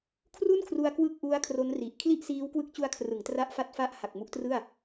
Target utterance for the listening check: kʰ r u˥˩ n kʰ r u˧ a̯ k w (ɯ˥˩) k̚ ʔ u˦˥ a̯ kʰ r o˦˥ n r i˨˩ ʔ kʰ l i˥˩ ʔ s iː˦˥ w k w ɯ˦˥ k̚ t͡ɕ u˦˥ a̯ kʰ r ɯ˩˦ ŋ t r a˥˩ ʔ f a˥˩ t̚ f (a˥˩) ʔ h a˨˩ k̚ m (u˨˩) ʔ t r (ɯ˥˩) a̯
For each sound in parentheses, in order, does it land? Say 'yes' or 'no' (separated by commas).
yes, yes, no, yes